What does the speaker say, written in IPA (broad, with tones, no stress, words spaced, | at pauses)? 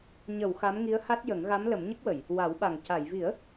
ɲə˨˩˨w xa˧˥mŋi˧˥ə̯ha˦˥t̚jə˨˩˦ŋ ɣa˧˥mlə˨˩˦mɲə˦˥k̚wə˨˩˨j | wa˨˩˦wɓa˨˩ŋ ca˨˩˨jvi˨˩˦ə̯